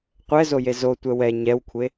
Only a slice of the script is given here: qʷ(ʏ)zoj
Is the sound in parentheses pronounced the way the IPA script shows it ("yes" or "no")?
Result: no